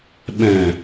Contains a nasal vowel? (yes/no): yes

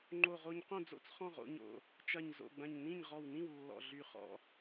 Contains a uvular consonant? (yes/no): yes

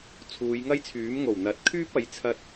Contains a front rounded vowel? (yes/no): yes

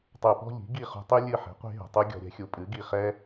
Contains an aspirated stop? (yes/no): no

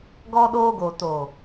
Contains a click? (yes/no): no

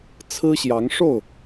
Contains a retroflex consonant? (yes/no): yes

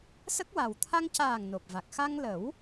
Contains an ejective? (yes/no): no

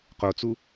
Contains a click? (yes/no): no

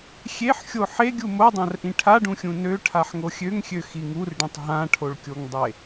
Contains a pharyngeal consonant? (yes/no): yes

